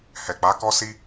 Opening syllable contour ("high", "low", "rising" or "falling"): low